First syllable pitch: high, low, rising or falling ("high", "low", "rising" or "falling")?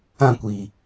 falling